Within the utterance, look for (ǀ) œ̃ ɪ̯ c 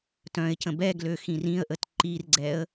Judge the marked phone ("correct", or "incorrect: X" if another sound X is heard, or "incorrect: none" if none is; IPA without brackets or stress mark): incorrect: t